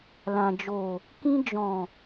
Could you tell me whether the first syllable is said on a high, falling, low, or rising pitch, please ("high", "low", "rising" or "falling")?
low